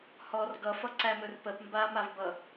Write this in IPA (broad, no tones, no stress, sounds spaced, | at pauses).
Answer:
h ɔ r ɡ ʌ f ʌ ǀ æ m ɵ r p ə p m b a m a v b ʌ